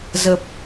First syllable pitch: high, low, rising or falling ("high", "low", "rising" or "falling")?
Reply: low